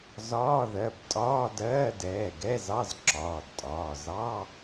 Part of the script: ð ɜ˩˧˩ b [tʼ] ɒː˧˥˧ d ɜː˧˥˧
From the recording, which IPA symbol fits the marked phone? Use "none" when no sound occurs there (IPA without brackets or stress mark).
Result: tʼ